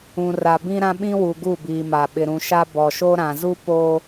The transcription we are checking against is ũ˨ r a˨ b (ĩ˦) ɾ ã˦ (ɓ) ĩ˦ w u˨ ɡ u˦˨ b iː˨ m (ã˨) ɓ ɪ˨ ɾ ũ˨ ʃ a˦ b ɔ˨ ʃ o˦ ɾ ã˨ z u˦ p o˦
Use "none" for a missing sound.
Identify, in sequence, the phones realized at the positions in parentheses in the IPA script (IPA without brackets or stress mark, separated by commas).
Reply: ĩ˦, ɓ, a˨